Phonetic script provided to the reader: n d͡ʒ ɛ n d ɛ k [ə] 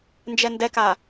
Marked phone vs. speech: incorrect: a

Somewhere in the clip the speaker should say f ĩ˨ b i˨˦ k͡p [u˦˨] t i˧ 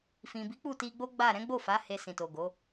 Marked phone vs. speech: correct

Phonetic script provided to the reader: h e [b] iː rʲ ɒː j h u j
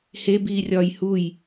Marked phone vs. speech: correct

